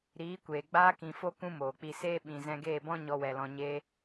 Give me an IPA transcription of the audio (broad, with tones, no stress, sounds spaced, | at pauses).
ɾ iː˨˦ kʷ eː˨ ɡ͡b aː˧ k ĩ˨ f o˧ k ũ˦ m oː˨ k͡p i˧ s eː˦ ɓ ĩ˨ z ɛ̃˧ ɡ eː˦˨ b ɔ̃˦ ɲ ɔ˧ w ɛ˨ l ɔ̃˧ ɲ e˧